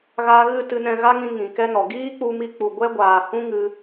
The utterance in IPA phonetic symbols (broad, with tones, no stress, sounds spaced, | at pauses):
ɣ a˧ ɣ ɨ˦˨ t ɨ˧ n ɛ̃˧ ɣ a˦ ŋ ĩ˧ ŋ ĩ˨ k ɛ˦ n ɔ˨ ɡ iː˦ k͡p u˧ m i˧ k͡p u˨ ɡʷ ɛ˦ ɡʷ aː˨ h ũ˦ ŋ ɨ˧